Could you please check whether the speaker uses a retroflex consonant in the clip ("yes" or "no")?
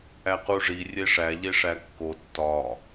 yes